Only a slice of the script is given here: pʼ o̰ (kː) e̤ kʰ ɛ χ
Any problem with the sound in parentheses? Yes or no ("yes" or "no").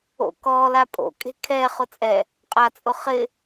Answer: yes